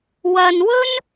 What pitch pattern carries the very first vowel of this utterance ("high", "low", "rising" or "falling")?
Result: low